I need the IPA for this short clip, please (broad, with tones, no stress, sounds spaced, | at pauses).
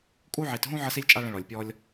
kʼ u˥ ʕ i˧ t ɦ ũ˥ ʕ ə˥ s i˥ lʲ t͡ʃʼ a˥ ɭ ə̃˥ ɭ ɔ˧ lʲ pʲ ɔ˥ lʲ